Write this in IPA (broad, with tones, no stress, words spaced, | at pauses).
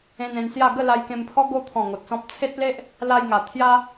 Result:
ẽ˧nẽ˧nsja˥˧ ɡə˥˧ la˧jkẽ˧mpʰɔ˦ ɡo˧t̪ʰɔ̃˨˩ ŋo˨t̚sɔ̃˦p̚ t͡sʰe˦t̚le˦ʔ | la˧j ŋa˨˩t̪ʰja˦